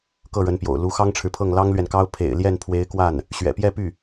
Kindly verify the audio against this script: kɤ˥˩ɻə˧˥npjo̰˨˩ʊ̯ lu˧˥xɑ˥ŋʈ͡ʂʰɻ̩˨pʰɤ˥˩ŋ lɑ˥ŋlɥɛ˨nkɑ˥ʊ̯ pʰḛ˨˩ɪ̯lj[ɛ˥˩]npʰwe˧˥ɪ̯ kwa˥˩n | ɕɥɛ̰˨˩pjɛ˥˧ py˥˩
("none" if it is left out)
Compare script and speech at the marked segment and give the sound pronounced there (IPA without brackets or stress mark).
ɛ˥˩